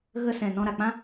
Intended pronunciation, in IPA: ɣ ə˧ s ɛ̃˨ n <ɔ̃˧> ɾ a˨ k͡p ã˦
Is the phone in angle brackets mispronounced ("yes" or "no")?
no